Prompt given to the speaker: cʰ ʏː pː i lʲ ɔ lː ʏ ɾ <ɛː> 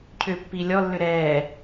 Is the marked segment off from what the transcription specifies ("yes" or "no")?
no